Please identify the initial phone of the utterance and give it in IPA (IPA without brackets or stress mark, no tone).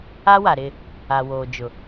a